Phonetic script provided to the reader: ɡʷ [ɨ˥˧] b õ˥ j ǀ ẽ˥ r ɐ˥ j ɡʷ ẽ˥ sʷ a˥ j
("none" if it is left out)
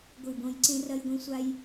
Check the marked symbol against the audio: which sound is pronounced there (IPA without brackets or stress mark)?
ɨ˥˧